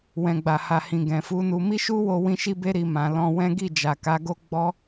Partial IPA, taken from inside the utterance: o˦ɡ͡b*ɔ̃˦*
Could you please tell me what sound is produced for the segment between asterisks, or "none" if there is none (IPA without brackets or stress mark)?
ɔ˦